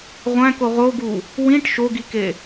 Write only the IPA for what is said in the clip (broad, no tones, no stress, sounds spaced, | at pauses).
ʁʷ æ̃ k o ʁ o ɡ u | w ĩ ʈ ʃ o ɡ i k e